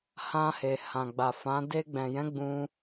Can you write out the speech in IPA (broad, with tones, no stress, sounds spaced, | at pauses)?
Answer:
h ã˧ h e˨ h ã˨ ɡ͡b a˨ f ã˨˦ d e˧ ɡ͡b ɛ̃˨ j ɛ̃˨˦ ɡ͡b ũ˦